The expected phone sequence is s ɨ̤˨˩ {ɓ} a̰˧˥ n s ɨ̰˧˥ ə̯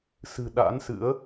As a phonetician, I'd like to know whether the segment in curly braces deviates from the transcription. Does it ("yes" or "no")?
yes